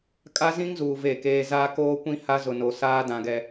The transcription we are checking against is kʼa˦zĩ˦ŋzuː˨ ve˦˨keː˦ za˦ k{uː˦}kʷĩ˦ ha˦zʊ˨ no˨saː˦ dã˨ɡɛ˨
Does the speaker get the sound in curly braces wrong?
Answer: yes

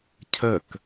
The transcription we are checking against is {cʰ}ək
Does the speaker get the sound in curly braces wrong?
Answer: no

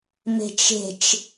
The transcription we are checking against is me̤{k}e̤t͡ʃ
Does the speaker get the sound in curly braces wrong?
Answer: yes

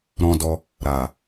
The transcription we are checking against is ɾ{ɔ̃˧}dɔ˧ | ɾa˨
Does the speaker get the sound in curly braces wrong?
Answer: no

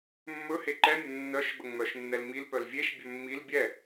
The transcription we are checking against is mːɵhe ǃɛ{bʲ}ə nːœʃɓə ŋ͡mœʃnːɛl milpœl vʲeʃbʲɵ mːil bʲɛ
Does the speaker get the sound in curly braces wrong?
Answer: yes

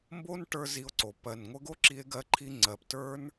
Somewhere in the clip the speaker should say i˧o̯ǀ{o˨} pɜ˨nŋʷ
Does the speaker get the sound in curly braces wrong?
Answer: no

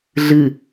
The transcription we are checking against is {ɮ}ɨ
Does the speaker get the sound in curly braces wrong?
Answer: no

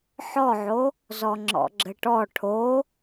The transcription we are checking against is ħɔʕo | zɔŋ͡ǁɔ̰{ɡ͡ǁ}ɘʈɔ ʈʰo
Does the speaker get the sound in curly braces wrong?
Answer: no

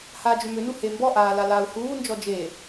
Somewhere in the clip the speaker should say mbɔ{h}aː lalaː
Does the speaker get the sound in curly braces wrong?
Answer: yes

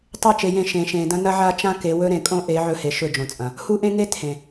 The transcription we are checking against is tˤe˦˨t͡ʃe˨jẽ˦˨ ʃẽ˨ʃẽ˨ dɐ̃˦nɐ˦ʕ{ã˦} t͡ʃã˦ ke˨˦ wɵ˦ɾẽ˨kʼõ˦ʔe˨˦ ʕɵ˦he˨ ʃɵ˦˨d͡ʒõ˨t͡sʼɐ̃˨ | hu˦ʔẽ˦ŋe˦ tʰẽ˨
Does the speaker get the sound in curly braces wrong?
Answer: yes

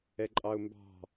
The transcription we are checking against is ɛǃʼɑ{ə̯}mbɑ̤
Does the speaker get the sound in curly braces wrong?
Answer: yes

